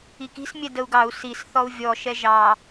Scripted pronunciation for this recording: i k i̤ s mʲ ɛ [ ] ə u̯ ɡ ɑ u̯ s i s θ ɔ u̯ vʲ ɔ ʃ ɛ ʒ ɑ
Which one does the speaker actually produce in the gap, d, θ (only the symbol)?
d